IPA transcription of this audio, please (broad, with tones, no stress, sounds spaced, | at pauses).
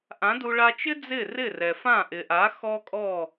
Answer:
ʔ ã˩˥ d u˧ ɭ a˧ t͡ʃ ɪ˥ d͡z ɪ˥˩ r ɪ˥˩ r ɛ˩ f ã˥˩ ʔ ɪ˩ ʔ a˩˥ x ɔ˥ kʼ ɔ˥˩